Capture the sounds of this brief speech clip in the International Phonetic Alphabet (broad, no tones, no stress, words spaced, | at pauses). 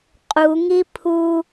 qʼu ŋipʰu